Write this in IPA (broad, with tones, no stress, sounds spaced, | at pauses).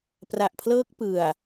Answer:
p r a˨˩ ʔ pʰ l ɤː˦˥ k̚ p ɯ˨˩ a̯